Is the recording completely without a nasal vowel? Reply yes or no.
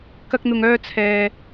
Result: yes